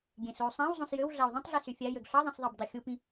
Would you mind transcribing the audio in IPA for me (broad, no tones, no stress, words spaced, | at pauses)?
ɡʲẽsou̯sˤæ̃w zˤũsjøw ɮæu̯ðˤĩtˤɮi syfʲæjøɡ ɬɑðˤẽsðˤɑb dˤøxʲupĩ